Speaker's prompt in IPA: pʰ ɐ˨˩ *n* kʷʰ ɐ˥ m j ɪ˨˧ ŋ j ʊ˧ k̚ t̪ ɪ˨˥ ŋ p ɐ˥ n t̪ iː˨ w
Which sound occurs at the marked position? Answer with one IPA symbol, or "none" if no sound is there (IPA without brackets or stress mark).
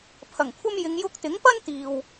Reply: ŋ